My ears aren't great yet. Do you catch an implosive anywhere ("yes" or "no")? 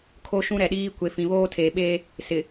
yes